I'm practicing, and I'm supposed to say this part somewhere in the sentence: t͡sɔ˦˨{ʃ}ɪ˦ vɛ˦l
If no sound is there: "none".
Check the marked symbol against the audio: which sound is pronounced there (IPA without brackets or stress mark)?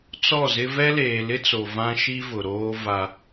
z